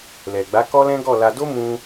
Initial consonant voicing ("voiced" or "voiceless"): voiced